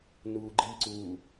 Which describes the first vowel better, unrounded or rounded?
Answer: rounded